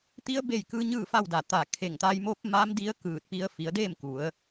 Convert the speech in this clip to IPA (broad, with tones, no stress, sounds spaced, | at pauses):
t̪ i˧˥ ə̯ b e˥˨ j k ɯː˧˥ ɲ ɯː˥˨ f a˥˨ w d a˧˩ t̪ a˧˩ kʰ e˧˩ ŋ t̪ a˧ j m o˧˥ p̚ m a˧˥ m d i˧˥ ə̯ k ɯː˧˩ t̚ p i˧ ə̯ f i˩˧ ə̯ d e˥˨ m k u˩˧ ə̯